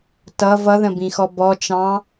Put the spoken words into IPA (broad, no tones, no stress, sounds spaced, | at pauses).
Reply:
t ʌ v ʌ ð ə̃ b ĩ x ɔ b ɔ t͡ʃ ɑ̃